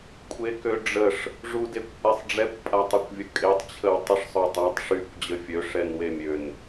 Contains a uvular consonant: no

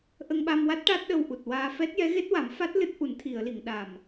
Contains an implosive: yes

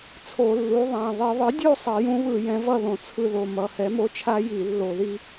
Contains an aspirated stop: yes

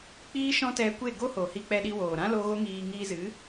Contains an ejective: no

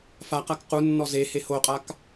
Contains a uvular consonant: yes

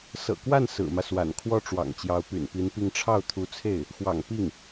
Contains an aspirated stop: yes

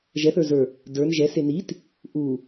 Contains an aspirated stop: no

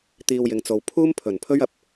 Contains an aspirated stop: yes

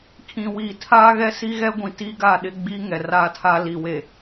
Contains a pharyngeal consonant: no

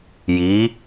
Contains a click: no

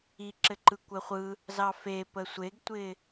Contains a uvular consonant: yes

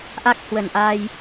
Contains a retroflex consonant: no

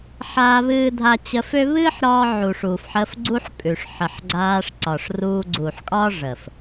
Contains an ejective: yes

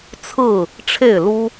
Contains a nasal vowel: no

